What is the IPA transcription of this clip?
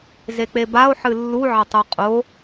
zek͡pebao̯ ħɨlːu ʕɐtˤuqʼo

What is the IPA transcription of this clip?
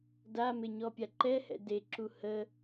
damɪɲɔpʲa ǃɛhɛ̰ deǁu hə

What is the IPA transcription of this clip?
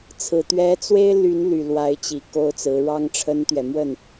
t͡sʰɹ̩˨˩ t̪ɥɛ˧˥ t͡swe˥ɪ̯ly˧˥nly˨˩ lwa˧˥ɪ̯t͡ɕi˨˩ ko˥ʊ̯t͡sɹ̩˧˥ ɻɑ˥ŋʈ͡ʂʰə˥nt̪ɥɛ˨ mwə˥˩n

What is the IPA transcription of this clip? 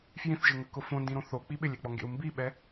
fjĩθʒɪŋəkʊ fõndĩɾõ θok͡pi ɓɪlʲek͡pɔŋɡḛu̯ mbiɓɛ

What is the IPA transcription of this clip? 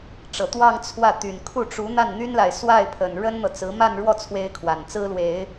ʈ͡ʂɤ˨˩t̪wɑ˥˧ŋ t͡sʰwä˥˩ t̪y˨˩n kʰu˥˩ʈ͡ʂu˧˥ n̪a˥˩nn̪y˥nla˨ɪ̯ swa˥˩ɪ̯pʰə˨˩n ɻə˥nn̪ɤ˨t͡sɹ̩˧˥ ma˥˧nɻwɔ˥˩ t͡sʰwe˥ɪ̯kʰwa˨˩nt͡sɹ̩˥lwe˨˩˦ɪ̯

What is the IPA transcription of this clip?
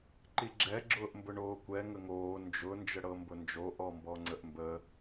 ǃiɡ͡ǁɛ ɡ͡ǁʊːʔmbʊɳoːkʷɛ ŋəŋoː nd͡ʒʊ nd͡ʒəɽɤmbʊnd͡ʒo ʔɔmbɔŋ͡ǀəʔmbə

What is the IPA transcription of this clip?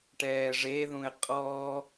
ʈɛːʐeðũɪ̯ qʼɔ

